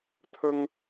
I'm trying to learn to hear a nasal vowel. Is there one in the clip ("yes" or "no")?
no